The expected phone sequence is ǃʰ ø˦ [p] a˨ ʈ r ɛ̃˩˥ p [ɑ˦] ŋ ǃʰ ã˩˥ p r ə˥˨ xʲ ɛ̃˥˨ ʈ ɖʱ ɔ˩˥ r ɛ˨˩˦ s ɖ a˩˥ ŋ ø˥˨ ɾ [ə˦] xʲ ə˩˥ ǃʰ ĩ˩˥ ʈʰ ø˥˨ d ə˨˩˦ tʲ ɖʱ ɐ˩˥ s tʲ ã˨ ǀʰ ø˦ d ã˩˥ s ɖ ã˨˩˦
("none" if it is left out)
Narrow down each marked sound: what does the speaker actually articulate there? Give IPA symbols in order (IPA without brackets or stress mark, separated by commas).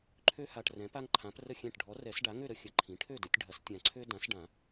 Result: h, a˦, ə˦